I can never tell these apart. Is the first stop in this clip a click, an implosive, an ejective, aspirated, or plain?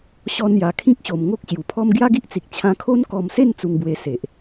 aspirated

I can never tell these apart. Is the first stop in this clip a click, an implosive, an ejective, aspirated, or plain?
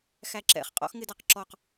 click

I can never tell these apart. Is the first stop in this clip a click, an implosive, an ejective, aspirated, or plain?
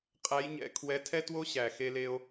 ejective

